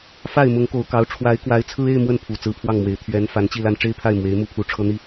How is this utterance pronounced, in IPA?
f a˥˩ ɪ̯ m ʊ˧˥ ŋ k o˧˥ ʊ̯ k ɑ˧˥ ʊ̯ ʈ͡ʂʰ w a˧˥ ɪ̯ k w a˧˥ ɪ̯ t͡sʰ ɹ̩˥ e˥˧ ɪ̯ m w ə˥˩ n pʰ u˨˩ t͡s ɹ̩˧˥ pʰ w ɑ˥˩ ŋ m w e˨˩ ɪ̯ t̪ʰ ɥ ɛ˧˥ n f a˧˥ n t͡ɕ i˥˧ l a˥˩ n ʈ͡ʂ e˥ ɪ̯ pʰ a˥˩ ɪ̯ m w e˧˥ ɪ̯ m u˥˩ pʰ u˧˥ ʈ͡ʂʰ ɤ˥ n̪ i˥˩

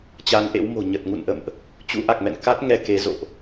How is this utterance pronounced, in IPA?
t͡ɕ a˨˦ n ʔ ḛ˧˥ w m o̤˨˩ ɲ ə˨˩ t̚ ŋ ṵ˧˨ n ʔ ə̰˧˨ m ʔ | t͡ɕ ṵ˧˥ ʔ a˨˩ k̚ m ɛ̰˧˨ n k a˦˥ t̚ ŋ ɛ˧ k e˨˦ z o̰˧˨ ʔ

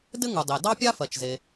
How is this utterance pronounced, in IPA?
d ɘ˥ ŋ u˩ dˤ e˩ d ɑ˥ pʲ a˥ f ɜ˩ t͡ʃ z e˩

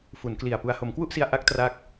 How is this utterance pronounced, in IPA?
f u˩˦ n k l i˨˩ a̯ p u˧ a̯ h o˩˦ m k w u˥˩ ʔ s i˧ a̯ ʔ a˦˥ k̚ t r a˦˥ k̚

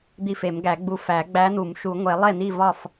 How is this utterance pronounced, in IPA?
d̪ i˥˨ f e˨˩˦ m ɡ æ˨˩˦ ɡ͡b u˧ f æ˨˩˦ ɡ͡b æ˧˥ n̪ u˨˩˦ m ʃ u˨˩˦ ŋʷ e˨˩˦ lˠ e˥˨ n̪ i˥˨ v ɒ˥˨ f

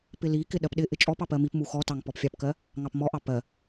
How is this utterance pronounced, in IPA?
p ɪ l i k ɪ ɗ ɜ p ɗ ɪ ʔ ɪ t͡ʃʼ ɔ p ɑ p ɜ m i p m u x ɔ t ɑ ŋ p ɔ p fʲ ɑ p k ɜ | ŋ ɑ p m ɔ ʔ ɑ p ɜ

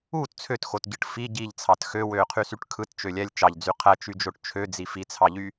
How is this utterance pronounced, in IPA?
uː t t͡sʰ ø t x o t ɟ ɯ ʈ f i ɟ i ʎ t͡sʰ ɑ t x ø w øː qʰ y s y ʈ kʰ ɯ t t͡ʃ ø lʲ æ lʲ t͡ʃ ɑ ʎ d͡z y qʰ æ t͡ʃ y d͡ʒ o ʈ t͡ʃʰ ø d͡z i f i t͡sʰ ɑ ʎ y

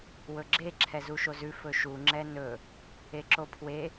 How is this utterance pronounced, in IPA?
w ɵ ɡ͡ǁ e ǁʰ ɛ z u ʃ o z ʉ f ɵ ʃ u ŋ͡ǁ ɛ n ɵ | e ǁ o pʰ w e

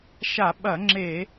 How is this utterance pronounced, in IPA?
ʃ a˧˩˧ ɓ ɐ˧˩˧ ŋ͡ǁ e˧˩˧

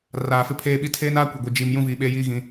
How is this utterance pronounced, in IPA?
r aː˨ f ɪ˦ pʰ eː˦ ɓ i˦ tʰ eː˦ n aː˦ kʷ e˨ ɡʷ i˨ d͡ʒ i˨ m j ũ˦ v iː˨ ɓ eː˦ j iː˦ ɣ ĩ˦

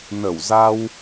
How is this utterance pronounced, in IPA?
n ə˧˩ w z a˧ w

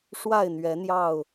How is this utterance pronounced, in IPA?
ʂ w a˥˨ ɪ̯ n̪ ɥ ɛ˨˦ n̪ j ɑ˥˨ ʊ̯

